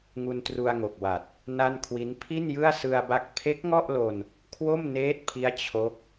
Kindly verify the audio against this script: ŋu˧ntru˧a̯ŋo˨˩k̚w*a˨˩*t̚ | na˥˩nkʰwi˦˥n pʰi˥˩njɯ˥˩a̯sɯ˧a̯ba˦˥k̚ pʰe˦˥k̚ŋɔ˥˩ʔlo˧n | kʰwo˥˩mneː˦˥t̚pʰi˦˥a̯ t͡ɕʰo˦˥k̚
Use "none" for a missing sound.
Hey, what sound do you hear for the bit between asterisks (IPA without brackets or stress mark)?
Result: a˨˩